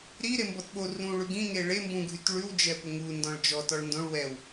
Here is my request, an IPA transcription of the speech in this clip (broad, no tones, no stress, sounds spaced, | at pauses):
ɾ i ɾ e m b ɔ t ɓ o r ũ ɭ ʉ ɡ ĩ ŋ e ɭ e m b ũ ɡʱ y t ɭ ʉ w d͡ʒ ɛ p ʊ ŋ u n d ɔ̃ ɭ d͡ʒ ɔ t ɔ ɭ n d õ ɭ w ɛ w